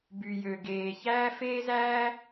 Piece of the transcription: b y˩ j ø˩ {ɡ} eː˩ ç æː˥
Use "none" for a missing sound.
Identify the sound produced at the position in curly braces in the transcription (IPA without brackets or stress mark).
ɡ